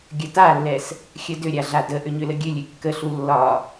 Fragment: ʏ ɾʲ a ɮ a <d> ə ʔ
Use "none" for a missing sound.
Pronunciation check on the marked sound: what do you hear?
d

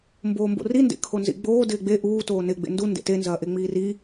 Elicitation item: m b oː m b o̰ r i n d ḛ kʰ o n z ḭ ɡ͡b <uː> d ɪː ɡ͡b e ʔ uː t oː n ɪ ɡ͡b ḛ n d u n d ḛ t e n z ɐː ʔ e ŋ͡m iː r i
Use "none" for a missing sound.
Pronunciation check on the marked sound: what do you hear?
oː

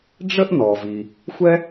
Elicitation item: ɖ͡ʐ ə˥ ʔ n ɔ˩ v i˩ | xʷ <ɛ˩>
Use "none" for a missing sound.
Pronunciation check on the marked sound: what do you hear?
ɛ˥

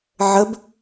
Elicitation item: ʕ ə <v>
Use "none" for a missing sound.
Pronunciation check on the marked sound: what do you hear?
b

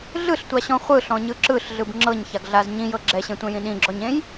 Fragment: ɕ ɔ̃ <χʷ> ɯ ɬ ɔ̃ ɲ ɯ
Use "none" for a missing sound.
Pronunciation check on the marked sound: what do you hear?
χʷ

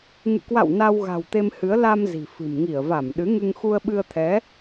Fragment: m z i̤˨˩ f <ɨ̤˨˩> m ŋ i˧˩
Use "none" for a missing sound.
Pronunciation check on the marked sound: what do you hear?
ɨ̤˨˩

